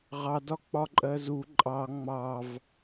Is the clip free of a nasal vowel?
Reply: yes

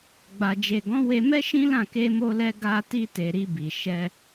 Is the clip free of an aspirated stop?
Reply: yes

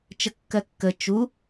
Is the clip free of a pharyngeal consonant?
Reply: yes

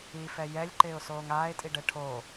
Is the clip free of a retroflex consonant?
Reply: no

